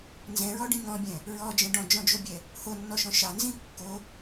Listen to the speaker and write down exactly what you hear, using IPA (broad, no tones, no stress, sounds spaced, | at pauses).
n z ɛ̃ ɹ ɔ ɖ ĩ ŋ ɔ̃ bʲ ɛ̃ | ɹ ɔ d͡ʒ ɛ̃ ɖ ɔ̃ d͡ʒ ɔ̃ d͡ʒ o bʲ ɛ | h o nː ɔ ʃ ɔ̃ ʃ ɑ n z ĩ kː o